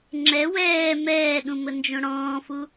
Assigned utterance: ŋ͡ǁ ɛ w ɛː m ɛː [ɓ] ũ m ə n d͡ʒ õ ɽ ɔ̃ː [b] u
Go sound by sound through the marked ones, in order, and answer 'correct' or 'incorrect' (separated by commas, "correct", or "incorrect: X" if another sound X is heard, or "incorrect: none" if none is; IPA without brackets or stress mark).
incorrect: ɗ, incorrect: f